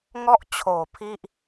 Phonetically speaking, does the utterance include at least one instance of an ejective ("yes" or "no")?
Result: no